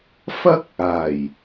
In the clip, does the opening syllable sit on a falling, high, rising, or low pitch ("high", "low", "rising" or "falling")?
high